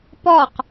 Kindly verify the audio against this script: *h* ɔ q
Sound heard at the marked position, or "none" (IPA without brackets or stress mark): p